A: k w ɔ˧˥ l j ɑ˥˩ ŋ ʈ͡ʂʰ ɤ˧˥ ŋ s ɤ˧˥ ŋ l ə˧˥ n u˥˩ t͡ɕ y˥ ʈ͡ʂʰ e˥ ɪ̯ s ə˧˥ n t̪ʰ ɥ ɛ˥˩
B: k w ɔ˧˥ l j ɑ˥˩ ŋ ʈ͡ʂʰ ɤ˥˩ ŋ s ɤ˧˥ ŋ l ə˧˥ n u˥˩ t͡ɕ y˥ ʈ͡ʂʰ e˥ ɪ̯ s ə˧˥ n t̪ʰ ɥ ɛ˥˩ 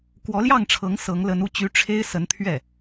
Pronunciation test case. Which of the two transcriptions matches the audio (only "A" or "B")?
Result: A